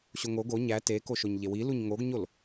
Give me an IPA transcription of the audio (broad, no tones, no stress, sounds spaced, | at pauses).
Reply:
ɕ o ŋ o ɡ o ɲ æ t e k o ʃ o ɲ ʎ e w i l u ɲ ŋ o ɡ ɲ o l